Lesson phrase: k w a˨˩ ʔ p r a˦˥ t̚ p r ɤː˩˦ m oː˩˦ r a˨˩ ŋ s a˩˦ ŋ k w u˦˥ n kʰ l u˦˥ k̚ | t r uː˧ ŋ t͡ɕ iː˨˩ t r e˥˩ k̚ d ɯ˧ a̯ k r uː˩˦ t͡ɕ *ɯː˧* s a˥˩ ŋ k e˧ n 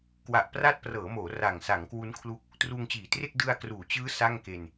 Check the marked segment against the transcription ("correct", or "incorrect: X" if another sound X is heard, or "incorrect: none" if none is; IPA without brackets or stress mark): incorrect: ɯː˦˥